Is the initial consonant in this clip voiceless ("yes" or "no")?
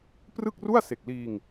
yes